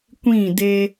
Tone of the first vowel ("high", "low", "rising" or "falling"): falling